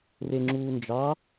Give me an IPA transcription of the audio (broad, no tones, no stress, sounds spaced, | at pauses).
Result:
r e ŋ͡ǁ uː n d͡ʒ ɑ